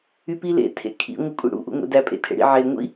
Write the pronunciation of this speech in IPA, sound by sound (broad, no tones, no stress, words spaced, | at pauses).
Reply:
ypilḛ tʰḛkʰḭ ŋʷɯkʷʼḭɽṵ ʔṵŋʷḛdæ pʼḛtʰḛɽḭ ʕe ŋʷḭ